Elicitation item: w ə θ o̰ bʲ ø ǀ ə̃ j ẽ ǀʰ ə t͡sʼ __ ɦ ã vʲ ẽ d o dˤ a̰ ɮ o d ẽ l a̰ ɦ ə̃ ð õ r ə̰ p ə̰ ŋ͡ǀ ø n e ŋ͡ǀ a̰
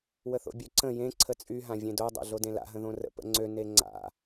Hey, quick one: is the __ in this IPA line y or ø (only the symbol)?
y